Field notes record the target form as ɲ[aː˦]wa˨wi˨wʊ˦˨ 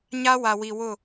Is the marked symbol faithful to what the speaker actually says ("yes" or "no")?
no